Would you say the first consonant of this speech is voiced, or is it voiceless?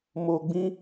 voiced